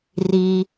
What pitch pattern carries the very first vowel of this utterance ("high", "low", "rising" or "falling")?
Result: low